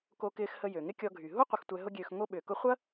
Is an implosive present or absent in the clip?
present